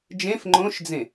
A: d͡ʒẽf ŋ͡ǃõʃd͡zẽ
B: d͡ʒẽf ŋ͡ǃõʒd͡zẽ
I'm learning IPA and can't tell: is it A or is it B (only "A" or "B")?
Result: A